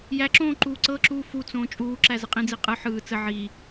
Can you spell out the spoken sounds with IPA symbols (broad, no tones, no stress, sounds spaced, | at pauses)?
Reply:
j æ ǁ õː ǃ uː ǀ ɤ ǁ uː f u t͡s õː t͡ʃʼ uː ǁ æ z ə qʼ ĩ d͡z i qʼ ɯ ħ ɯː t͡s ə ʕ i